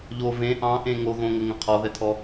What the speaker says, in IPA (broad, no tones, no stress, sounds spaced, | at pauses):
ʎ o v ẽ ʔ ɑ̃ ʔ ẽ ŋ o ɣ õ ŋ ɘ ŋ ə̃ qʰ ɔ ð ɛ tʰ ɔ